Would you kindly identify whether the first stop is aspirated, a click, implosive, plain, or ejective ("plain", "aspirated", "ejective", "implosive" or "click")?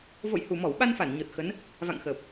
implosive